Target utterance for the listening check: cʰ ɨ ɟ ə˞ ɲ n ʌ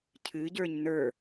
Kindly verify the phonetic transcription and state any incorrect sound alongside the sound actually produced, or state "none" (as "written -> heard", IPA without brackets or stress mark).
ʌ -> ə˞